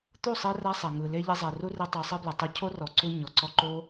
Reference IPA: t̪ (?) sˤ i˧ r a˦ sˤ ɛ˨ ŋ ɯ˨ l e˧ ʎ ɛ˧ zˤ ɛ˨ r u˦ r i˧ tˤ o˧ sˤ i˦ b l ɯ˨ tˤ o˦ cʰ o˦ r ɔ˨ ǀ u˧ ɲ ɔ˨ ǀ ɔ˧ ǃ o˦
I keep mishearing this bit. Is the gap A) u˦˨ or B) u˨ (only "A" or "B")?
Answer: A